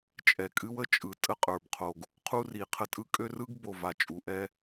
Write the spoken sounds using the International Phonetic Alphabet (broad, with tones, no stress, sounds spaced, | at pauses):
t͡ʃʼ ɛ˨ kʼ ɨ˦ w ə˦ t͡ʃʼ ɯ˨ tʼ ə˦ qʼ ə˞˨ b qʰ o˨ ɡ | qʰ u˦ r i˨ qʰ ə˦ tʼ ɯ˦ kʼ ø˦ r ɯ˦ ɡ b o˨ v a˨ t͡ʃʼ u˨ ʔ ɛ˦